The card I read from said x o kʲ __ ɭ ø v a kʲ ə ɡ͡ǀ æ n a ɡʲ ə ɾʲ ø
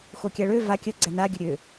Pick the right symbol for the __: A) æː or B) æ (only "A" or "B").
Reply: B